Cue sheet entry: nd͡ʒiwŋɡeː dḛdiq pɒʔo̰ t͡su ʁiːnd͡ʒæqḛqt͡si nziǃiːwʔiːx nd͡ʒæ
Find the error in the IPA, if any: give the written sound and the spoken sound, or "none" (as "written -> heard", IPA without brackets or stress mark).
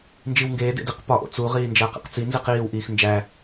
ǃ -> q